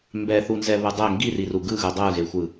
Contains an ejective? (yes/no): no